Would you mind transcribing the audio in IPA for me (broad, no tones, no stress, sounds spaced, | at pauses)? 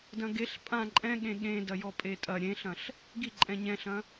d ɐ̃ ɡ e ɬ pʼ ã ǃʼ ɛ̃ ɠ ẽ ɠ ẽ d ɐ j ɔ pʼ e tʼ ɐ ɾʲ ẽ ɬ ɐ̃ ɬ | ɡ i ǃʼ ɛ̃ ɲ ɛ̃ ɬ ɐ̃